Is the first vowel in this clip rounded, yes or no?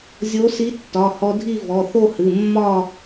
yes